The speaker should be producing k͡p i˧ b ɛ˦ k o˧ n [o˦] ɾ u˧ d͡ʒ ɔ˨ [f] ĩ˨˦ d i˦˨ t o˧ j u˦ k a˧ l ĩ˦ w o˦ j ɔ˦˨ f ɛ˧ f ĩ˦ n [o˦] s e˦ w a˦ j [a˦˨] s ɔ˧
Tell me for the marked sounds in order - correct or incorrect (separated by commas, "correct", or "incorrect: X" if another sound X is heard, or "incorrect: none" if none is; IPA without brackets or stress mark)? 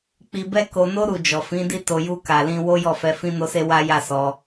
correct, correct, correct, correct